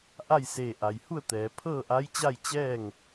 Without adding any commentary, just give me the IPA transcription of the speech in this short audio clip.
ʔa˥˨jseː˧˩ʔa˩jhu˥˨ə̯ t̪ɛː˩˧ pʰɤː˥˨ʔa˧˥jt͡ɕa˥˨j t͡ɕɛː˥˨ŋ

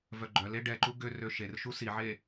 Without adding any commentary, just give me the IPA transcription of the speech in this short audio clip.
vœɡ͡ǃœle ɖɛǃu ɡørø ʃerʃu siʕe

